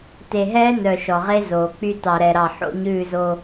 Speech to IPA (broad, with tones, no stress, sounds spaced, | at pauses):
t e˨ ɦ ɛː˦ n œ˨ ʃ ɔ˨ ʁ e˦ z oː˨ k͡p y˦ t ɑ˨ ɾ ɛ˨ ɾ ɑ˨ ħ o̰˦ ɲ ʉː˦˨ z o˦